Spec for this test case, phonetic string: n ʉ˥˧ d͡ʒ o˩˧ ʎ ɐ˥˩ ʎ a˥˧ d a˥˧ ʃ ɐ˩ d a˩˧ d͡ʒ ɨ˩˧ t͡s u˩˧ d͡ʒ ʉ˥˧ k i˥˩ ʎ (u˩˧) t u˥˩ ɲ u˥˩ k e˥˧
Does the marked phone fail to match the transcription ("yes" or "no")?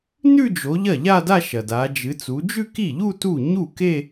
yes